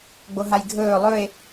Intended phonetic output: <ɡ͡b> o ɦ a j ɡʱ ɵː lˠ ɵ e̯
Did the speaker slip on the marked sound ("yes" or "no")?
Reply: no